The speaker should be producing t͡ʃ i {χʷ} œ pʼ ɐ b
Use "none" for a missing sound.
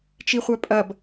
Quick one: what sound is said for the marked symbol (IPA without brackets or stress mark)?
χʷ